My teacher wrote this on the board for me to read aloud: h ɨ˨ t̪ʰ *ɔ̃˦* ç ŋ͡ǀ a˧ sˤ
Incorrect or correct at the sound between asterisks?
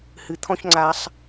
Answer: correct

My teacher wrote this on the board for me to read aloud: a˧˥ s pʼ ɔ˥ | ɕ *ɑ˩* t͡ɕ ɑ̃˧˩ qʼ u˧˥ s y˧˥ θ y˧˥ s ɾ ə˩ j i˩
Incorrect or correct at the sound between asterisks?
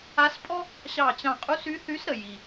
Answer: incorrect: ɑ˧˩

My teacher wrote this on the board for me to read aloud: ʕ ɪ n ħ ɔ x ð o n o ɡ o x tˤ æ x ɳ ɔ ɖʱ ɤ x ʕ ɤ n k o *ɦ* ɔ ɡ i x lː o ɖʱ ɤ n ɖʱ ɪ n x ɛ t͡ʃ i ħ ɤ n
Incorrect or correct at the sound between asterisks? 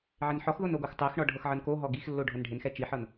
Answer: correct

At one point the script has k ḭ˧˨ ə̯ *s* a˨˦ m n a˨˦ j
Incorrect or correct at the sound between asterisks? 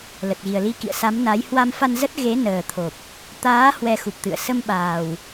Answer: correct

